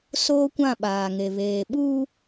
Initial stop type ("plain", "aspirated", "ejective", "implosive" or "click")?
plain